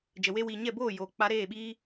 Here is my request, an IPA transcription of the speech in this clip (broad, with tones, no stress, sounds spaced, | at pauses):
d͡ʒ ə˨ w e˧ w iː˨ ɲ ɛ˦˨ b oː˦˨ j oː˨ k͡p a˧ ɾ eː˦˨ ɓ iː˦